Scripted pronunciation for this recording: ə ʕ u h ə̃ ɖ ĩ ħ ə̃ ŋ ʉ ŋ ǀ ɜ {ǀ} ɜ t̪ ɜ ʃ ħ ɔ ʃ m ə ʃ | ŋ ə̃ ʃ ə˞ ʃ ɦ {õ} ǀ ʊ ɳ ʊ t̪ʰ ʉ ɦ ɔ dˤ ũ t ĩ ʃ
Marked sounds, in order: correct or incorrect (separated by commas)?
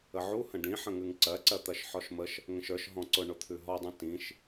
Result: correct, incorrect